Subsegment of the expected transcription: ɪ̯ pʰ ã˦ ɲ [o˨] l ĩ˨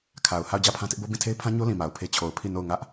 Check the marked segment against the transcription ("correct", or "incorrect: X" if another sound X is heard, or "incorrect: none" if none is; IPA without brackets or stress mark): incorrect: o˦